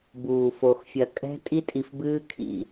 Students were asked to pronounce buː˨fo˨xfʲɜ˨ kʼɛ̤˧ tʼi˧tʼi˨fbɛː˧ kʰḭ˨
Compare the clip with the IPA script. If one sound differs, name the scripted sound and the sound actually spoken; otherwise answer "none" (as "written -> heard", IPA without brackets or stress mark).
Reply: ɛː˧ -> ɨː˧